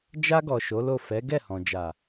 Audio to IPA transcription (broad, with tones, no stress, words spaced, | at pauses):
d͡ʒa˧ɡɔ˨ ʃo˨˦lo˦˨ fɛ˨˦ ɡɛ˦˨hɔ̃˨d͡ʒa˨